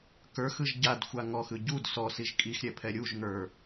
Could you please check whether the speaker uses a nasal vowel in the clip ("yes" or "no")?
no